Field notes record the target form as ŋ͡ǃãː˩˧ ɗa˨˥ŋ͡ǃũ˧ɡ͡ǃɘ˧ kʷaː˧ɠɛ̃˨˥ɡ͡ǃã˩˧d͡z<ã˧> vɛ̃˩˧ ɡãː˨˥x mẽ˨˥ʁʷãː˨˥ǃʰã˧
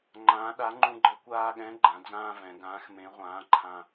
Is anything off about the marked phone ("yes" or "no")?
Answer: yes